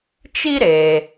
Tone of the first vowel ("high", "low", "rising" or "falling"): high